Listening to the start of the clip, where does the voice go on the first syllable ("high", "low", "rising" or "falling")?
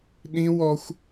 high